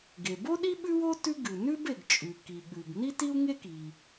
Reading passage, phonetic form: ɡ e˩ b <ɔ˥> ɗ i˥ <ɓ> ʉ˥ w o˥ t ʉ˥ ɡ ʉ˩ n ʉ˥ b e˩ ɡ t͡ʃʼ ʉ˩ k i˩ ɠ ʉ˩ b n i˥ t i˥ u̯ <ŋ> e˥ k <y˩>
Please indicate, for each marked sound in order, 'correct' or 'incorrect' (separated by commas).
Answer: incorrect, correct, correct, incorrect